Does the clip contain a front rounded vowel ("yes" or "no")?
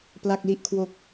no